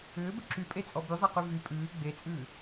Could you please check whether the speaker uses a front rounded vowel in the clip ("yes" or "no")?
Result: yes